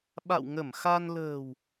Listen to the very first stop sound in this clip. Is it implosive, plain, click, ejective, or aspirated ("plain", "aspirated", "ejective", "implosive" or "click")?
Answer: implosive